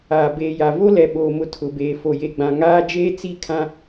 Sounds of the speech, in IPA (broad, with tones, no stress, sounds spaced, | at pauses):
aː˨ b eː˨ j a˨ v o˦ l ɛ˨ ɓ oː˨ m ʊ˨ tʰ ʊ˨ b eː˨ f o˨ j e˨ ɡ͡b ã˨ ŋ aː˦ d͡ʒ eː˦ t͡s i˦ kʰ ã˦